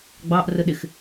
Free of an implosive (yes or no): no